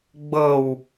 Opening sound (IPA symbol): ɡ͡b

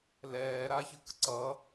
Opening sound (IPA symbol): l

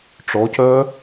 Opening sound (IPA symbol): ʈ͡ʂ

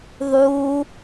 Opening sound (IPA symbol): ðˤ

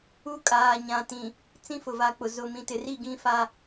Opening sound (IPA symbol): u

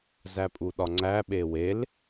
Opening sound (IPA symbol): z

